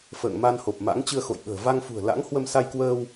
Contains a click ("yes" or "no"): no